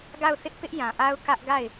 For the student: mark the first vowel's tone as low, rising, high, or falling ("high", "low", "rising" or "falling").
falling